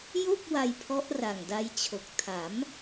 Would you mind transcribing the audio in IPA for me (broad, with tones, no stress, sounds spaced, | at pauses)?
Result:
j o˥˩ k̚ w a˧ j pʰ ɔ˦˥ ʔ r a˨˩ ŋ d a˦˥ j t͡ɕʰ o˨˩ k̚ tʰ a˩˦ m